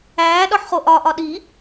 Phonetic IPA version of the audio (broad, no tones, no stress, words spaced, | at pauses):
æːɗɒħ χoʔɒʔɒ ɗi